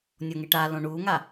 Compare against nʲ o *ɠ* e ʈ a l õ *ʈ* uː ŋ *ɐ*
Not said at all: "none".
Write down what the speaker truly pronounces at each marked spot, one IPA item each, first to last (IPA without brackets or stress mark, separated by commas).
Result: ŋ, ɳ, a